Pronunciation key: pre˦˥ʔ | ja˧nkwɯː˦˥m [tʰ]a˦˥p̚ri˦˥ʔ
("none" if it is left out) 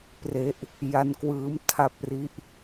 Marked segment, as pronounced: tʰ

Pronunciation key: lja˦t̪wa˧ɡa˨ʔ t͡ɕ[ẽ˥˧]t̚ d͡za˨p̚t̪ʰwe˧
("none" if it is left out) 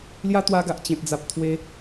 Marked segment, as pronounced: ẽ˨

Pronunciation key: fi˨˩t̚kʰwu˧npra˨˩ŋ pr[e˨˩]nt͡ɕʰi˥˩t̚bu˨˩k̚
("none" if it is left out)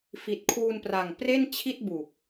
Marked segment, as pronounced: e˥˩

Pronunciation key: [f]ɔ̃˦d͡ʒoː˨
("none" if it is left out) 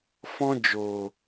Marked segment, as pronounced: f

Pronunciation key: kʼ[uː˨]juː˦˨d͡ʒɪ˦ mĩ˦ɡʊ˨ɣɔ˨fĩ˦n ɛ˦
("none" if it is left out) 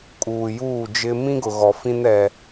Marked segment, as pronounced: uː˨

